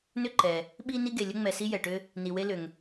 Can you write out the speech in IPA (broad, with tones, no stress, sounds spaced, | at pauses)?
n ʏ˥ ǃ ɛ˩ | ɓ i˦ n i˥ ɡ e˩ lʲ ə˥ ŋ͡m ɛ˨ s i˥ j ɛ˩ ʈ ʏ˦ | n i˩ w e˦ l ʏ˩ ŋ